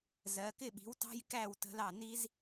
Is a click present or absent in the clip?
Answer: absent